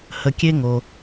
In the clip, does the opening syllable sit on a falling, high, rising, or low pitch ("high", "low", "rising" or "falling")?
low